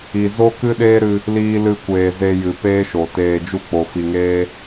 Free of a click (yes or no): yes